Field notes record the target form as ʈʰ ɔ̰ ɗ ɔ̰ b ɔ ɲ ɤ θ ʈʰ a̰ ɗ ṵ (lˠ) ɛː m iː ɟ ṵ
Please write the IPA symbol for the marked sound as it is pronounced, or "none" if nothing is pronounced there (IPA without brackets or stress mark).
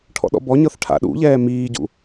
ʎ